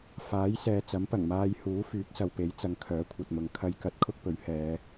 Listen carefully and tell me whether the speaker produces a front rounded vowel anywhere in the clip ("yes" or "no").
yes